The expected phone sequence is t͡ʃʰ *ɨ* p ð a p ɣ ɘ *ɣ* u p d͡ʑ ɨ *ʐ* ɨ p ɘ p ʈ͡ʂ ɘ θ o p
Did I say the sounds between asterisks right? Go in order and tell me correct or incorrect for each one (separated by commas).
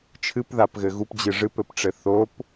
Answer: correct, correct, correct